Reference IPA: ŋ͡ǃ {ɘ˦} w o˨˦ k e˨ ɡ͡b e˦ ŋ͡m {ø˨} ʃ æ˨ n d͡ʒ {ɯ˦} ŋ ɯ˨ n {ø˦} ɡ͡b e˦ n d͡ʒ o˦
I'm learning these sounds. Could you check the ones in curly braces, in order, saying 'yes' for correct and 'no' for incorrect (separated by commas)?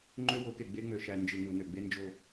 no, yes, no, no